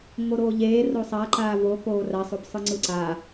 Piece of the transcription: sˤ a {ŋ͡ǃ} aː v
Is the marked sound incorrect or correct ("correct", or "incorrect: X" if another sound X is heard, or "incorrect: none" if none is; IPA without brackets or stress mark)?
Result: incorrect: ǃ